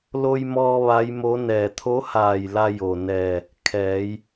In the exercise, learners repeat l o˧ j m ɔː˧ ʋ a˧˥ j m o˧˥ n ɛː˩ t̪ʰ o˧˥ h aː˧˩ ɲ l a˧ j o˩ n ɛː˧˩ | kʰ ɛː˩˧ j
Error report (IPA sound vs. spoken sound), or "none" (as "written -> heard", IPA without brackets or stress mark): ɲ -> j